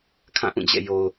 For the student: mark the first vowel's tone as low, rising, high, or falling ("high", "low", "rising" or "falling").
falling